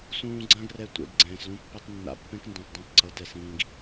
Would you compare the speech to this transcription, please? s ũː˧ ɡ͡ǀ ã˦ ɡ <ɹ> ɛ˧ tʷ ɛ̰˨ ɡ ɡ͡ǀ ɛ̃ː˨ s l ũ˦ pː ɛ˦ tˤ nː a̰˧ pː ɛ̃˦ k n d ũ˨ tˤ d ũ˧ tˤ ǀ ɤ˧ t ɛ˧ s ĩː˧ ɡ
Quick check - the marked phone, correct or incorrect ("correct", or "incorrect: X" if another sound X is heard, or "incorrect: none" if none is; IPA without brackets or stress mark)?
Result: incorrect: r